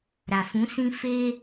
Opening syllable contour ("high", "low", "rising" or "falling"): low